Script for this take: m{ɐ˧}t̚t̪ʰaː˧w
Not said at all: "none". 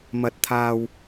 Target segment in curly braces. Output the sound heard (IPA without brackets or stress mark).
ɐ˧